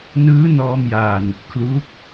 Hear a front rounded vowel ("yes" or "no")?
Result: no